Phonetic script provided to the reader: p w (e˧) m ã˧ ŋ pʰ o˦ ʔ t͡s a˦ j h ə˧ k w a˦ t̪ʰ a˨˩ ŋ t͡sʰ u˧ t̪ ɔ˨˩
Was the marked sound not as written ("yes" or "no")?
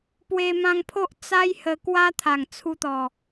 no